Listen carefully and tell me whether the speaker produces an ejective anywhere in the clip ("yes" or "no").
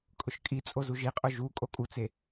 yes